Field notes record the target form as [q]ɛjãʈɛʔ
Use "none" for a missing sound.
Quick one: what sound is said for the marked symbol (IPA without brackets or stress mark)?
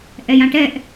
ʔ